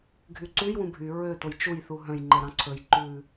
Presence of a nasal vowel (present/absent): present